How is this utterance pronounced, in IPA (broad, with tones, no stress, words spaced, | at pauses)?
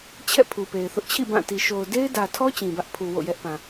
t͡ɕʰɛ̰˦˨ pʰu˨pe˨ɪ̯θʊ˦ʔ t͡ɕʰḭ˦˨ bã˦˨ti˨ ʃo˨ʊ̯ de˦ɪ̯dä˨tʰɔ˦ t͡ɕĩ˨bä˦ʔ pʰu˨ wo̰˦˨jɛ˦ʔpã˨